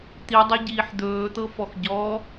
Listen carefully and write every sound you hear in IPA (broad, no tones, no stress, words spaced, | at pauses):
t̪idˤeɟiːħ d̪ɵːt̪ɤfɔx ɟɔ